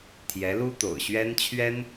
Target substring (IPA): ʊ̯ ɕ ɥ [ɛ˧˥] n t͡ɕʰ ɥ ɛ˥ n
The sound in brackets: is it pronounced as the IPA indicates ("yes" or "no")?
no